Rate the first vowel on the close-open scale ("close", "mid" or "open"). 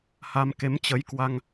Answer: open